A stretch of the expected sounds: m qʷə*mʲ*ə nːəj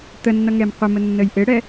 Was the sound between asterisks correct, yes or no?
no